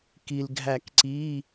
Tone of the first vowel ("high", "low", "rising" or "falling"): low